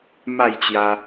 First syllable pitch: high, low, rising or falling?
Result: falling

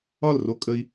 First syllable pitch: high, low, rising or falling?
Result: falling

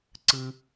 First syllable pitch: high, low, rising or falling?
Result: low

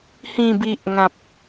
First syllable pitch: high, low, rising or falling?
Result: low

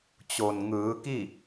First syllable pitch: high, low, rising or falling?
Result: low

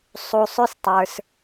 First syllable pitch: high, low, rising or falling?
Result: low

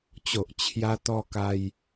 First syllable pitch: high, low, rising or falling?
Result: low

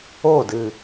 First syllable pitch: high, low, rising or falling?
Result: falling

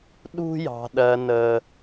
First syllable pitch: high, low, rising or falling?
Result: high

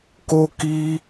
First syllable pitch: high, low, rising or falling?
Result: high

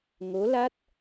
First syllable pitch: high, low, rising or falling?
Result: rising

